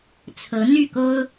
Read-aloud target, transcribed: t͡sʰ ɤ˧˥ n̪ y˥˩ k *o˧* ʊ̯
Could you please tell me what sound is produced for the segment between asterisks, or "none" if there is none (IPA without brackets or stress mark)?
o˥